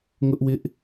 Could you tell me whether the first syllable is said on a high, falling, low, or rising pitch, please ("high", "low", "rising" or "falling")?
high